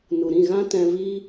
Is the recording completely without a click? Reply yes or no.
yes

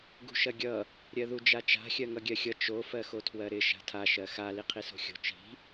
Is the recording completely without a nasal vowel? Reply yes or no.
yes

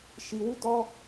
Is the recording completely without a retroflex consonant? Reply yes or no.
yes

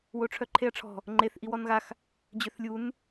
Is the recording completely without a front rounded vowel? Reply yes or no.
no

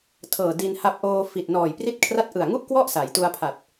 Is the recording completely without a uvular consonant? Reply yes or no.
yes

